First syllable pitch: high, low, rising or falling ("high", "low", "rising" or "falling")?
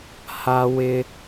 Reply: high